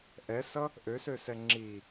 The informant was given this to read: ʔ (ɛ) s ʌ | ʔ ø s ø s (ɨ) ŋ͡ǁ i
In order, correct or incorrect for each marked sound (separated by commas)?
correct, incorrect